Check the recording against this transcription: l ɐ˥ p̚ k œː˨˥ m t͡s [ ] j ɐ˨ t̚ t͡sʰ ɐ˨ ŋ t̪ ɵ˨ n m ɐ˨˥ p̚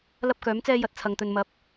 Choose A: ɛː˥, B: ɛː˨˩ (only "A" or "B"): A